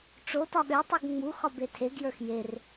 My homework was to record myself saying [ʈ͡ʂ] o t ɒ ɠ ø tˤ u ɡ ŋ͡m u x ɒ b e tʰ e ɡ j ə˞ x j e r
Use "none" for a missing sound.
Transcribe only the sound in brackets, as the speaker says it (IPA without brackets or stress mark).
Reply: ʈ͡ʂ